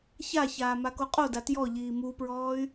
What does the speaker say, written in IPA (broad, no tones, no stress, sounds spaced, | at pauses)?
ç a ç aː m a k o qʼ o d a t j ɔ ʎ iː m u p ɹ ɔː y̯